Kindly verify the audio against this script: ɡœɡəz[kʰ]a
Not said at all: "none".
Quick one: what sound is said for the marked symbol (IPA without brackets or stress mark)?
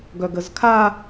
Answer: kʰ